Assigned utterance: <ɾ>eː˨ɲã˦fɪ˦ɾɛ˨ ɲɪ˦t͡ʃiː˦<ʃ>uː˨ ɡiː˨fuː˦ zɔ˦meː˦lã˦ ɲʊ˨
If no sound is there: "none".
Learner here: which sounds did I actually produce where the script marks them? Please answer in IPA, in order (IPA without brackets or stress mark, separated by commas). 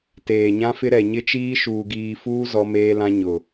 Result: t, ʃ